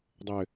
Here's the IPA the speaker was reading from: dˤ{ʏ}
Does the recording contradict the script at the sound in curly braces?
no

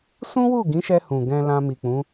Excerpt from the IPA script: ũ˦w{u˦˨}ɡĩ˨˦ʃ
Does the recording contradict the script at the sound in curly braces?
no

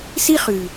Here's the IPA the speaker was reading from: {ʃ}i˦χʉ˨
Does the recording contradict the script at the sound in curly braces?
yes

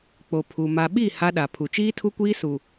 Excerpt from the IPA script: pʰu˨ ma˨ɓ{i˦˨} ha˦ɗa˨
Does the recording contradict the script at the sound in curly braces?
no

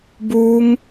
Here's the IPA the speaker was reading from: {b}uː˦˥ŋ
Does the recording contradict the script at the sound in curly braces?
no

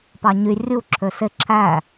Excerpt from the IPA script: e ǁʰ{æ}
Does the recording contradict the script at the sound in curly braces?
no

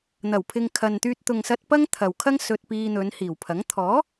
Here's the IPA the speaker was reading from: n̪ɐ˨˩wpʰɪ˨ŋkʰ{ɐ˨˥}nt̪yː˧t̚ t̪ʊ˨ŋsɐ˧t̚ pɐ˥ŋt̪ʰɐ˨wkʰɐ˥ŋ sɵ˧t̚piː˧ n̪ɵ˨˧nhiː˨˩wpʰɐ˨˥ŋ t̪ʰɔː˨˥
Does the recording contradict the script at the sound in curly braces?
yes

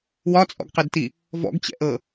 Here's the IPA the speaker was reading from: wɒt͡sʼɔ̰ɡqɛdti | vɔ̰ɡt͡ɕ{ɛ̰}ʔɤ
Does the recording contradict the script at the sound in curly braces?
no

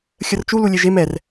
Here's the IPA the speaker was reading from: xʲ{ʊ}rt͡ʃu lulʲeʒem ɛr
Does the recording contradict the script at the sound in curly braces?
yes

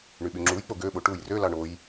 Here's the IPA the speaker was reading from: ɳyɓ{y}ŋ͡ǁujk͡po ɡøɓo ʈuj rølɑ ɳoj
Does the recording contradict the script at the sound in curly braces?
no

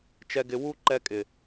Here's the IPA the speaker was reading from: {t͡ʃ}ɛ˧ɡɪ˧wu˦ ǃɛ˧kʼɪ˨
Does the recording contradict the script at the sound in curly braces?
no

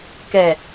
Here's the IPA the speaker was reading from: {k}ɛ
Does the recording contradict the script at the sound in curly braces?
no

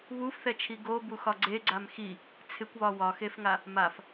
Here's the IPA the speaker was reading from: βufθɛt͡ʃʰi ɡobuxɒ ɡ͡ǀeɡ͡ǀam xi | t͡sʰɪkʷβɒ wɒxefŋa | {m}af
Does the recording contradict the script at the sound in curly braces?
no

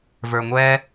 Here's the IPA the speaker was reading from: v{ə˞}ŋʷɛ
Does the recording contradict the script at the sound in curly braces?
no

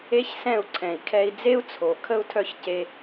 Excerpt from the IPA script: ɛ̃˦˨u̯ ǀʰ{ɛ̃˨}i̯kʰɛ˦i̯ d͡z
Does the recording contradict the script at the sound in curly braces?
no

